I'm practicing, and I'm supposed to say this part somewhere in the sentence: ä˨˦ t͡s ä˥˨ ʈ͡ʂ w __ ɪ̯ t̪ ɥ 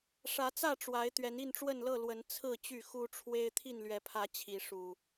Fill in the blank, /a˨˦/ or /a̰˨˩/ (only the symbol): a˨˦